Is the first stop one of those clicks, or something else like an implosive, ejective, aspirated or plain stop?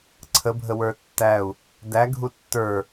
click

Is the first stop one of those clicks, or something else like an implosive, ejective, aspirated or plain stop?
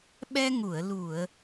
implosive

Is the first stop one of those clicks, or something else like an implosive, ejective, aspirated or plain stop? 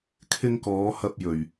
aspirated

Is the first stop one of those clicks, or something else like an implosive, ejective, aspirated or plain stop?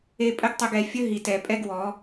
ejective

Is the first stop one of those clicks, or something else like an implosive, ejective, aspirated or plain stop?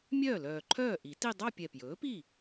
click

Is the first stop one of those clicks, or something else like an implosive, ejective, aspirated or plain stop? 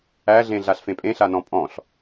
ejective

